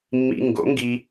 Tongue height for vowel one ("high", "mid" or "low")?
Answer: high